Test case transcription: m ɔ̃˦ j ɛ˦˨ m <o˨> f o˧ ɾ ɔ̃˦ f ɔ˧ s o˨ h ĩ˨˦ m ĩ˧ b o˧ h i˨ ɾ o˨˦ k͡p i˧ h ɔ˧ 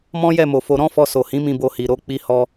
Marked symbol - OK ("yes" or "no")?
yes